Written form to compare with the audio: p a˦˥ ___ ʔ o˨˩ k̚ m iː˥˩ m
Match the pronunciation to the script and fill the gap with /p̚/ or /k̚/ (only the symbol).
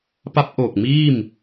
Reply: p̚